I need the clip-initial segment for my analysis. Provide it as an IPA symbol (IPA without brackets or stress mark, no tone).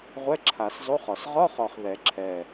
ʁʷ